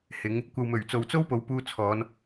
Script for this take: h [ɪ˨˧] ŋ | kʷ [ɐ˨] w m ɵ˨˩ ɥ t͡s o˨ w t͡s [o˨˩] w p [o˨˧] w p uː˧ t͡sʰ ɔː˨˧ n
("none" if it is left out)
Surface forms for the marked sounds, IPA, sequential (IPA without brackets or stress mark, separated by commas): ɪ˨˧, ɐ˨, o˥, o˨˧